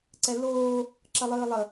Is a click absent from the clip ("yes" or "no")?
no